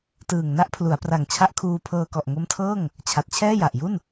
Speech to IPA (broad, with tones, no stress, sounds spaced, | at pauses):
t ɯː˨˩ ŋ n a˦˥ ʔ pʰ l u˩˦ a̯ p r a˨˩ ŋ t͡ɕʰ a˦˥ ʔ kʰ uː˧ pʰ ɤː˧ k ɔ˨˩ ʔ ŋ o˦˥ m tʰ ɤː˥˩ ŋ | t͡ɕʰ a˨˩ t̚ t͡ɕʰ ɛː˥˩ j a˨˩ ʔ j u˥˩ n